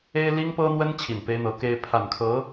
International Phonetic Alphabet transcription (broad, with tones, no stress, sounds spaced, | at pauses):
e˥ ɪ̯ l i˥ ŋ p ɤ˥ n̪ w ə˥ n t͡ɕʰ i˨˩ n p e˥ ɪ̯ n̪ ɤ˧˥ k e˥ ɪ̯ pʰ a˨˩ n kʰ ɤ˧˥